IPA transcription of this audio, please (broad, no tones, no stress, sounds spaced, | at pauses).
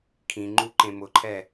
kʰ ĩ ŋ͡ǃ u ǃ ẽ m ʊ ǃʰ ɛ